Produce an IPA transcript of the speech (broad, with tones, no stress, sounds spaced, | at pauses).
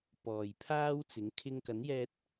p ɔː˨ j pʰ aː˥ w t͡s ɪ˨˥ ŋ kʰ ɪ˧ ŋ k ɐ˨˥ n j ɛː˧ t̚